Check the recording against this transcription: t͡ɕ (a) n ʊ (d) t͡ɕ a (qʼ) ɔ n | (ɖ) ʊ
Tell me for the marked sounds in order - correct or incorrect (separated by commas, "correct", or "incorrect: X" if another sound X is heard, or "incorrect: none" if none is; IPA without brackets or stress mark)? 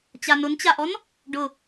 correct, incorrect: n, incorrect: ʔ, correct